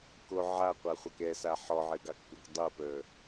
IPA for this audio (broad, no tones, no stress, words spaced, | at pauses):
ko ʕaqʷaχʷɑk ɛsa ħɔʕɘɡɑkpuk dˤopə˞